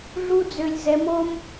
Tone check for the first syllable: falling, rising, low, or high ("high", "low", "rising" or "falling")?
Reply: high